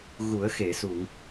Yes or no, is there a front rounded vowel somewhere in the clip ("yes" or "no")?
no